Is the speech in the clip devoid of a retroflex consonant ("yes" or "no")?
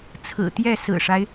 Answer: no